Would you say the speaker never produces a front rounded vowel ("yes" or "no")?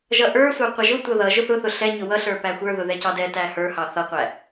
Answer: yes